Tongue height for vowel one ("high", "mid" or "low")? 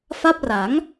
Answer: low